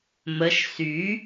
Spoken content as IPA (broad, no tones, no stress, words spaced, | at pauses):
məʃ sy